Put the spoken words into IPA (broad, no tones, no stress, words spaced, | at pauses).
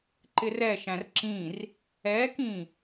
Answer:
ǃɪrɛʃæ̃r ǁĩr | ɛkĩ